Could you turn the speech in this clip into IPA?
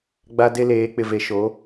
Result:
ɡ͡ba˦de˦leː˨˦ k͡pɪ˨ve˨ʃo˨˦

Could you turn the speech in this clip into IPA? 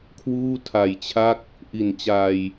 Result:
kʰwuː˥˩tʰa˨˩jt͡ɕʰa˥˩k̚ | ʔi˨˩nt͡ɕaː˧j

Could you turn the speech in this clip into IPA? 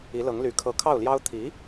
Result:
i˧˥lɤ˧˥ŋly˧˥ kʰɤ˧˥kʰɑ˥˩ʊ̯ljɑ˥ʊ̯ t̪ʰi˧˥

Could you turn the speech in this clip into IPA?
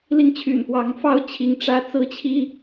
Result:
li˦ŋt͡ɕʰy̰˨˩nfwɑ˨˦ŋ fɑ˦ʊ̯t͡ɕʰi˨˦ŋ ʈ͡ʂä˦ t͡sɹ̩˦t͡ɕʰi˦

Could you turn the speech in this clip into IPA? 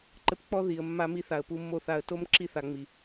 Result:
ǃɘ˧pk͡pɔ˦ ði˨ə̯ mːa˦mi˦ θa˨ə̯pu˧mːo˦˨θa˧ə̯ to˦m ǁi˦θa˨ ŋ͡mi˨

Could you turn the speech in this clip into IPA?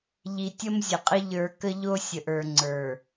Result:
ʎi˨ tʲə˦mzʲə˨qʼə˦ ʎə˞˨ kə˦ʎo˦sʲə˨ʔə˞˨ ŋ͡ǀə˞˨

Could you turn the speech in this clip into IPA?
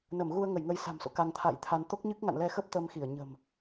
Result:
nə˧˩mɣu˧ə̯ŋə˧˩j ŋə˧jsa̤˨˩mso̰˧˨ ka˧ŋt̪ʰa̰ː˧˨jt̪ʰa˧n t̪o˦˥k̚ɲɨ˦˥k̚ ŋa̰˧˨nlɛ˧xə˦˥p̚ t̪ə˧mxi˧˩ə̯ɲə̤˨˩m

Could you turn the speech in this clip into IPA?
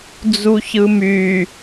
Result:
d͡zuçɯmy

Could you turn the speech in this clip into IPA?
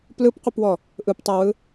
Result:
plɯpqʷɯpwɔ | ʔɯptˤawɯ

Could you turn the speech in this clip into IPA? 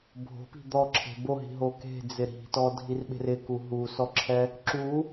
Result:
bʱo̤pi̤ d̪ɔǁʰe̤ boɦi̤ɦo ke̤d͡zɪ ɾi̤tɔdʱirɓe̤r ɪku ɦusɔǁʰɛ | ǁu

